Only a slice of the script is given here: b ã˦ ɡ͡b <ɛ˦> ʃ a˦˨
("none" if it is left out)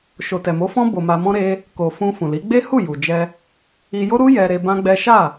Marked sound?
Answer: ɛ˦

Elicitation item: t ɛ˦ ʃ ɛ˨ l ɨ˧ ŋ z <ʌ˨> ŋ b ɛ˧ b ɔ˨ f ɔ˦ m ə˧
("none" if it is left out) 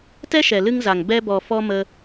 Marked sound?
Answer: a˨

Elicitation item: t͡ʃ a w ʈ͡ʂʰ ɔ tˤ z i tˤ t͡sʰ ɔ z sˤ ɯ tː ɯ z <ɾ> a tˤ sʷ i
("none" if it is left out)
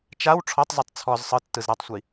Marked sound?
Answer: ɾ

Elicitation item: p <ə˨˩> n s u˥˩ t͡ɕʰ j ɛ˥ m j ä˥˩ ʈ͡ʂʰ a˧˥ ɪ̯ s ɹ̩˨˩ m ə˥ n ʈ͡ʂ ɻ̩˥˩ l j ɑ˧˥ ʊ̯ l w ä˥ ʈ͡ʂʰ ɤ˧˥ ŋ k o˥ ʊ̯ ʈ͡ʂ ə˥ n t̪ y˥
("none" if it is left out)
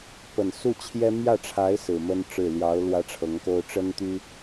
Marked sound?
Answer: ə˨˩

